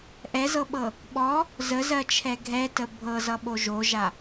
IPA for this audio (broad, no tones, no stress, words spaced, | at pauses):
ʔɛzɤɓɤ | ɓɔ | zəzɜt͡ʃʰɛ ɡʱɛtə bʱɤzʌɓo ʒoʒa